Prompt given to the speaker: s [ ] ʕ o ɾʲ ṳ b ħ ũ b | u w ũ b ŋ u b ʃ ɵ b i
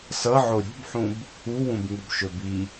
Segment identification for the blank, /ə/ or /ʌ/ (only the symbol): ʌ